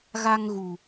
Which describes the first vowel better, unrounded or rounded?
unrounded